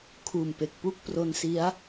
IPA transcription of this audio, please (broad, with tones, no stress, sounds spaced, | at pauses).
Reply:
kʰ uː˨˩ m p e˨˩ k̚ p u˥˩ k̚ p r o˧ n s i˦˥ a̯